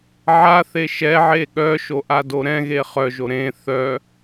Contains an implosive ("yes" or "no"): yes